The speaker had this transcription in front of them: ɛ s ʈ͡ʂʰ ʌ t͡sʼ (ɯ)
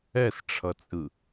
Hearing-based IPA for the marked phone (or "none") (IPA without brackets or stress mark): ɯ